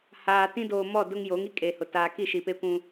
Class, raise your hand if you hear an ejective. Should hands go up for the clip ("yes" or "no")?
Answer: yes